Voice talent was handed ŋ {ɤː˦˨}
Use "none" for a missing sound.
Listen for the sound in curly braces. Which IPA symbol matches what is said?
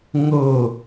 ɤː˦˨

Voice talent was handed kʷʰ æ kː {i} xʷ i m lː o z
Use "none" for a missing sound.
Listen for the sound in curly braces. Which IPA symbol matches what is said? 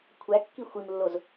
i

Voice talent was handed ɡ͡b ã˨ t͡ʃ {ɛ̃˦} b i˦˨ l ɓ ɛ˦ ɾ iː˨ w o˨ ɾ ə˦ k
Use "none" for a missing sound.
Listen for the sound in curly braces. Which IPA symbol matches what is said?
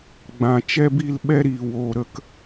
ɛ˦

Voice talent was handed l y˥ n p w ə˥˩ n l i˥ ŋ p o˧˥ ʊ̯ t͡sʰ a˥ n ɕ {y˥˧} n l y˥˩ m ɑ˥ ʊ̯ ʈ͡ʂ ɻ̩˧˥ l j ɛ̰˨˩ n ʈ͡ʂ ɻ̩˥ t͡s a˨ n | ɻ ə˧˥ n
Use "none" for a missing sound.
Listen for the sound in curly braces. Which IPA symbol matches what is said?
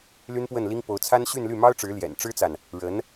y˥˧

